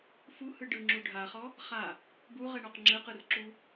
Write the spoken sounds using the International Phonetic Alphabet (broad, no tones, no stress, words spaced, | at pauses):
fuhɯ ɖɯŋ͡ǁu ɖʱaχɔ | χa | buʁɛɳɔq ŋ͡ǁɯqɯrǁu